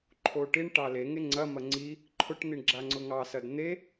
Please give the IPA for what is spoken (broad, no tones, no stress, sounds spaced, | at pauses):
ǃʰ o ʈ i ɳ ʈ ɑ l e ŋ e ŋ͡ǀ ɐ m ɐ ŋ͡ǀ i | ǃʰ ʊ ʈ n̪ i ɳ ɡ͡ǁ a ŋ͡ǀ ʊ ŋ ɑ s ɐ d n̪ e